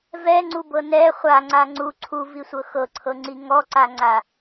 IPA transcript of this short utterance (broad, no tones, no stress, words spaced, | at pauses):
vɛŋ͡ǀubɤ nɛ χʷaŋ͡ǀa ŋ͡ǀu ǀʰuvisʷɤ xɤǀʰɤŋ͡ǀi ŋɔǀaŋ͡ǀa